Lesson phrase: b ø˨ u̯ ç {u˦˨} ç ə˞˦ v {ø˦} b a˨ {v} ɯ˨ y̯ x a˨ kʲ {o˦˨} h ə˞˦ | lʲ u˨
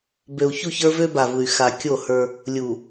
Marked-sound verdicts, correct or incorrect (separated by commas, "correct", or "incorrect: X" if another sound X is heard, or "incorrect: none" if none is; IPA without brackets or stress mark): correct, correct, correct, correct